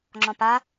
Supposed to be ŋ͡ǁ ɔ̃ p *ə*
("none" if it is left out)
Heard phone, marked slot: a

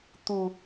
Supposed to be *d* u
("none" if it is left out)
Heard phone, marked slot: t̪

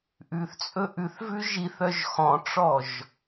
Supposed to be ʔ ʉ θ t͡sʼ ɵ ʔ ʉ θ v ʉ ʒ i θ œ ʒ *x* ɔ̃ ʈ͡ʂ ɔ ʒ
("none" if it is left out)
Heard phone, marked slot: x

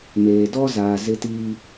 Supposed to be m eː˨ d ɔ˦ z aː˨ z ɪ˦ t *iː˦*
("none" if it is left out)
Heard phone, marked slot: iː˦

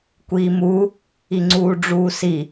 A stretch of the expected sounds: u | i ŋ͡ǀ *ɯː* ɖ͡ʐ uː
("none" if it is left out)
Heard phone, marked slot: uː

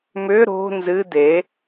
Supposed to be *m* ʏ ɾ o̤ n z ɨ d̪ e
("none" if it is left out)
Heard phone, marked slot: m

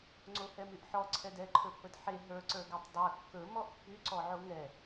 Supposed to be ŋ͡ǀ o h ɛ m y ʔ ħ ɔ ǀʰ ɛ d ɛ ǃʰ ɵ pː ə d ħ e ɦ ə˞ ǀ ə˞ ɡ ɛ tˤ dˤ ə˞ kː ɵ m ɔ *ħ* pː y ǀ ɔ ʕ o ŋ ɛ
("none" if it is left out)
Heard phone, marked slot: ʔ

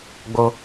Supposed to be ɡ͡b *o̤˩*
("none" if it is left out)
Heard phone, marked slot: o˩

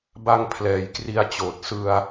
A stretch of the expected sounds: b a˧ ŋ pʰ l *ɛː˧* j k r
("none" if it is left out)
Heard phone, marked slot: ɛː˩˦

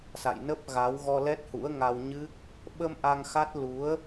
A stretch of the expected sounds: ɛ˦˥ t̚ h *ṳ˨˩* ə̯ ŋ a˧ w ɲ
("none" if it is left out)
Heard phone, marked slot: ṵ˧˥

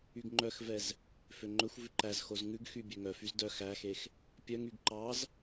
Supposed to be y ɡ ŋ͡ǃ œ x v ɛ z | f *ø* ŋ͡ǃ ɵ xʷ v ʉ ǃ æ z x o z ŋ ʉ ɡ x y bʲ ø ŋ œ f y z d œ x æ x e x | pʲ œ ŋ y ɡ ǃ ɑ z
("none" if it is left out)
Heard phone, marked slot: ø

